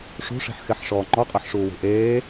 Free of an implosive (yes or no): yes